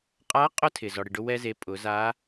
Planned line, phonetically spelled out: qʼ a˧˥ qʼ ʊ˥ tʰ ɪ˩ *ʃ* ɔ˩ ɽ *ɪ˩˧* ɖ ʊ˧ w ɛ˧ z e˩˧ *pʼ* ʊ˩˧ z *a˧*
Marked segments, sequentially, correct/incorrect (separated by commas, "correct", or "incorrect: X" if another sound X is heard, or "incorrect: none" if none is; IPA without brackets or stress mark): incorrect: z, incorrect: ɪ˩, correct, incorrect: a˧˥